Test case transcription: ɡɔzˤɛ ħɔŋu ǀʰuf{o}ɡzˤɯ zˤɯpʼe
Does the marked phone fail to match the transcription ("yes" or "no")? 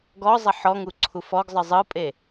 yes